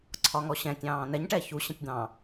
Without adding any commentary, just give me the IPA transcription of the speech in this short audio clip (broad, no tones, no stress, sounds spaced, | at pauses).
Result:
ǀʰ ɒ ŋ ɔ ɕ ɛ̃ tʲ ɑ̃ː n ɛ ɲ ʈ ɛ ç u ɕ ə̃ tʲ d̪ ɑ̃